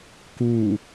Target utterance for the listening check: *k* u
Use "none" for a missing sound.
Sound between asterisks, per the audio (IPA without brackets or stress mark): k